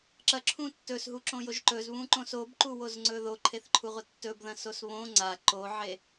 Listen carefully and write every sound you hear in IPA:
ǁɐǁʰũ tːɵsɦuǁõjoʒ ǃɵzβũǃõs obǃuwozŋ͡ǀɵ ðoǃʰeθǃʰuʁʷɐ tːɵbðɐ̃sos βõ ŋ͡ǀa ǃoʕe

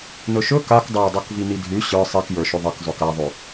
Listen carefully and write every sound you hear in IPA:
nɵʃɵ kak dˤadˤok vinidʱʉ ɕə˞ sˤikjə˞ʃʉ ðˤək zˤɵkaðˤʉ

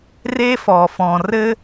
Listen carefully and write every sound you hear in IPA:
re˦fɔ˨fɔ̃˨ rɘ˦

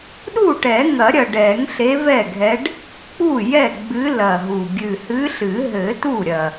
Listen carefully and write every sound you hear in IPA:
ɗu˥˩ʈɛ˨˩˦ ŋɐ˨˩˦ɾʲɐ˨˩ ɖɛ˨˩˦ŋɬe˧˥vɛ˥˩ɡʱɛ˧˥ɖ | k͡pu˥˩ jɛ˥˩ɡ͡bɨ˧˥lɐ˨˩ɦu˨˩ ɡʲɨ˨˩hɨ˧˥ɬɨ˨˩˦ɦɘ˨˩˦ tu˥˩ɾʲɐ˨˩

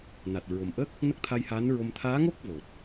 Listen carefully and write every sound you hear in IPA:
na˨˩t̚ɹo˨˩mʔə˦˥k̚ | nə˦˥k̚t̪ʰa˧jhaː˧˥nɹo˧m t̪ʰaː˧˥ŋo˦˥k̚ vo˨˩t̚

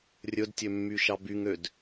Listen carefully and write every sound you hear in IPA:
rʲɵdtʲømːy ʃɑbyŋød

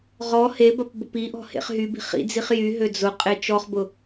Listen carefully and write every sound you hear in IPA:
ʁɔ hebɐp bʊpiʔɔ̤ hḛχɦybi̤ χḭd͡ziχ jyɦø d͡zʊ qʼet͡ʃɔχbʊ

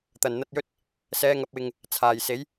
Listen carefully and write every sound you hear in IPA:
t̪ɐ˨˩nn̪ɐ˧t̚jɵ˥t̚ | sɛː˨˧ŋɐ˨p̚wɪ˨ŋ | t͡sʰaː˨˩jse˨˥j

